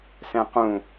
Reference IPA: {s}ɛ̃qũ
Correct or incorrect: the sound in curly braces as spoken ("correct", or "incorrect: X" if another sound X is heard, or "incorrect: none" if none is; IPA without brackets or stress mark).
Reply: correct